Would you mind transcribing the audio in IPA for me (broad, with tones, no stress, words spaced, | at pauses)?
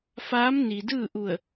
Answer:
faː˧˥mni˩ dɯː˥˨ʔu˧˩ə̯